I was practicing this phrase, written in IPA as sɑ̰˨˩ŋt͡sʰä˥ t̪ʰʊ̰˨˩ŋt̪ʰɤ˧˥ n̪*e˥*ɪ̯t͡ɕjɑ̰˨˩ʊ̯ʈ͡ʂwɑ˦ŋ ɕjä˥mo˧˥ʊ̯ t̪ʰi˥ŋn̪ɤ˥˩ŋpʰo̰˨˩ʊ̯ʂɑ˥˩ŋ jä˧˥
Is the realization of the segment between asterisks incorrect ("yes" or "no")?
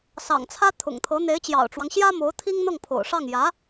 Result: yes